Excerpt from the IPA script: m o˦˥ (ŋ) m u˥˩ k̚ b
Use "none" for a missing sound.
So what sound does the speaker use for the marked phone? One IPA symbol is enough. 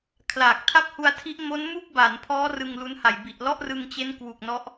n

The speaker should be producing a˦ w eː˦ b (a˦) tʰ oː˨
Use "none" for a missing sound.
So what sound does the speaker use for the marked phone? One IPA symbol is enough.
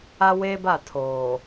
a˦˨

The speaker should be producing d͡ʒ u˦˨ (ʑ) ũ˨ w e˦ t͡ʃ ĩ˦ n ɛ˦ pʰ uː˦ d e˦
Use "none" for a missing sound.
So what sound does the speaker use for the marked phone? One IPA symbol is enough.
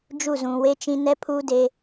z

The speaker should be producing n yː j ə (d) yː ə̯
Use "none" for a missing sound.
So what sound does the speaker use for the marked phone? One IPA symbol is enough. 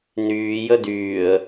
d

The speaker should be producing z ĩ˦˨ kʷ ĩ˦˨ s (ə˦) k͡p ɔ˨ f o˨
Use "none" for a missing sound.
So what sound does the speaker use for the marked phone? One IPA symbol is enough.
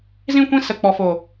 ə˨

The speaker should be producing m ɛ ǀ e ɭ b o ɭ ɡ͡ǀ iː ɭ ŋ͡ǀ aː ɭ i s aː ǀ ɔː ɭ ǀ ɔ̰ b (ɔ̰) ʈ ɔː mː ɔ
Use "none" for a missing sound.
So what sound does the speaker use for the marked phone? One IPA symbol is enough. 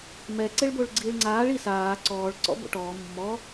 o̰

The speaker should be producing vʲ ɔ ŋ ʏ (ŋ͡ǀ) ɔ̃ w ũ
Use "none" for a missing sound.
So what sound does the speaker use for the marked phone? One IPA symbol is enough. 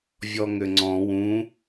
ŋ͡ǀ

